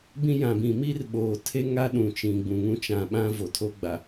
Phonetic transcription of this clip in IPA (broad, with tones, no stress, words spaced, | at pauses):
bĩ˦jã˨bĩ˨ mi˦rɓoː˨tʰe˦ ŋa˦ɗũ˨t͡ʃĩ˨ ɡ͡bũ˨ŋũ˦ t͡ʃã˨ɓã˦ vo˨tʰo˦ɡ͡ba˨